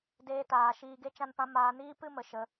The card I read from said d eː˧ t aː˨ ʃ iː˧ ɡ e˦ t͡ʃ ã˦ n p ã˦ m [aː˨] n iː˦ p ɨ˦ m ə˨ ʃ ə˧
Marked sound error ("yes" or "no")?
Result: yes